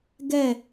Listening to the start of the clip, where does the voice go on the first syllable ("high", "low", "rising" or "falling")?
falling